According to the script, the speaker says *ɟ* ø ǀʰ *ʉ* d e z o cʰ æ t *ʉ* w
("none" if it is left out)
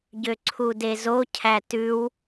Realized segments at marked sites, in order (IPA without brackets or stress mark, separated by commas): ɟ, u, ʉ